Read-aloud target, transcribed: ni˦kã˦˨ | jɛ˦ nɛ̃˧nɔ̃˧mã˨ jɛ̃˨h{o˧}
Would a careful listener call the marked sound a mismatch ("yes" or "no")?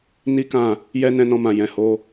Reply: no